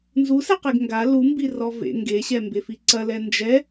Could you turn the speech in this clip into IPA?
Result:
n z u s ɛ q e ɡ ŋ ɡ a l u m b i r ɔ v ḛ ŋ ɡ e ɕ ɛ m b e f i ǀ ɐ l ɛ n d͡ʒ ɛ

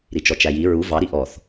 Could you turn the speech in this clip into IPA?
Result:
ɾ i t͡ʃ ɔ t͡ʃ æ j i ɹ u v ɑ ɾ i ʔ ɔ θ

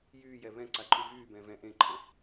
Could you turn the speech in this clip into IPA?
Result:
j yː j ɛ β ɛ̃ ǀ a ǃʰ y v yː b ɛ̃ː v ɛ̃ ʔ ẽ ǃʰ ə̃

